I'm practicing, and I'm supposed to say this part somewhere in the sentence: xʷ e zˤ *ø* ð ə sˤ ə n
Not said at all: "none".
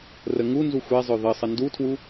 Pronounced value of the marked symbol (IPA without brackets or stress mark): ø